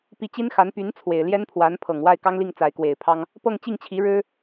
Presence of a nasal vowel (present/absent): absent